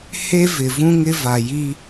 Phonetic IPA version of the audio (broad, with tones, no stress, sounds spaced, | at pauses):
h e˦ v ɪ˨ v ũ˦ ŋ ɪ˦ v a˨ j i˦